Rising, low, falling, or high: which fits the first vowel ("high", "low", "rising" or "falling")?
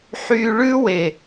high